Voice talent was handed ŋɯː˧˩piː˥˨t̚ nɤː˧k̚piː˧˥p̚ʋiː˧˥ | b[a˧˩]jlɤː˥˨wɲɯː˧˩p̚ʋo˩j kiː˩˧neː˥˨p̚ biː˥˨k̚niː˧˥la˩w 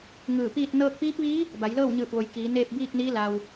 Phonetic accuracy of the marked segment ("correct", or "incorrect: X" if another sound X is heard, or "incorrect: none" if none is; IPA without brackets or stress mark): incorrect: a˩˧